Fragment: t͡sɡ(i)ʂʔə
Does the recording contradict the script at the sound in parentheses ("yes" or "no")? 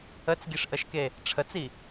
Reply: no